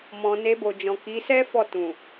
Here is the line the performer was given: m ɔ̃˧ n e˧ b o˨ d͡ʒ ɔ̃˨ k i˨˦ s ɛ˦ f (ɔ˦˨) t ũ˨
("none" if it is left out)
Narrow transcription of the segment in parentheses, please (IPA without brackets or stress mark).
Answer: ɔ˦˨